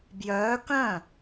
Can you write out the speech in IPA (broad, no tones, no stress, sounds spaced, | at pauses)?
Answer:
b j œː k œ̃